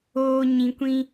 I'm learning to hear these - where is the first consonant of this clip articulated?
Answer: palate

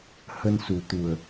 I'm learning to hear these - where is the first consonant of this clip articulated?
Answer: throat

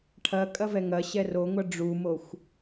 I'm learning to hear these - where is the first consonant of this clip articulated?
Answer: retroflex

